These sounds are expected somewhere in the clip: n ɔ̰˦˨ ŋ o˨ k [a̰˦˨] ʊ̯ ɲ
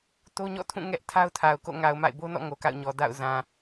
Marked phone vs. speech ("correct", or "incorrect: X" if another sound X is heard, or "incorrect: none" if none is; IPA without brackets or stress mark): correct